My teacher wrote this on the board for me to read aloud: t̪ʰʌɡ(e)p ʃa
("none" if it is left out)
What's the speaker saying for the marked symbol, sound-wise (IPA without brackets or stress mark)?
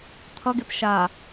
e